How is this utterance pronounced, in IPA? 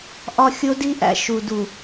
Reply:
ʔ ɒ˦ xʲ o˦ d i˦ ʔ æ̰˨ ʃ u˨ d u˨

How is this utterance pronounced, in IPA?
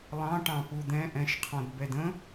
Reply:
lˠ ɑ̃ ʈ ɑ̃ p u d̪ ɛ̃ ʔ ɛ̃ ʃ qʰ ɔ̃ d b ɛ d ə̃

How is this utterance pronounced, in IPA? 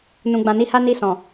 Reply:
n ũ˨ ɡ͡b ã˨ n i˧ h a˦ n i˧ s ɔ̃˨

